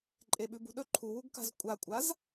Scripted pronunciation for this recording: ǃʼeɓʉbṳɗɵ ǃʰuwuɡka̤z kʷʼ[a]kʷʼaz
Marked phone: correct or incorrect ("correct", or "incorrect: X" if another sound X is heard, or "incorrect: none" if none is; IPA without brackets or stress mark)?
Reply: correct